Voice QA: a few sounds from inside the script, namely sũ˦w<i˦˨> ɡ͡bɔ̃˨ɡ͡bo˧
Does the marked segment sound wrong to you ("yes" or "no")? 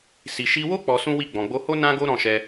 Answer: no